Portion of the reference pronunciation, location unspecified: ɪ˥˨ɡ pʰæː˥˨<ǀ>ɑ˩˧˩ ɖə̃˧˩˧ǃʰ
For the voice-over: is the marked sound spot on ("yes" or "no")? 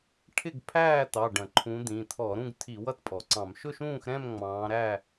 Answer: no